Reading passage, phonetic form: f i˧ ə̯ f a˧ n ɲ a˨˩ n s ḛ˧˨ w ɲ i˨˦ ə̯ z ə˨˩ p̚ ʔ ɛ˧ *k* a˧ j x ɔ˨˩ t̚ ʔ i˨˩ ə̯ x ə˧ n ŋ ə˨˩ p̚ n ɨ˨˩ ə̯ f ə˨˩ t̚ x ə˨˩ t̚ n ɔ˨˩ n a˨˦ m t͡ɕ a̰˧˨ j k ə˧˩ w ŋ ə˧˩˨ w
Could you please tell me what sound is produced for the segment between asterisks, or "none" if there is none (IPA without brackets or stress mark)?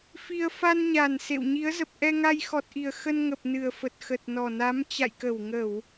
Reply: ŋ